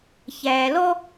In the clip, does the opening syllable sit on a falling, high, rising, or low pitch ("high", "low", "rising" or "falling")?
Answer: low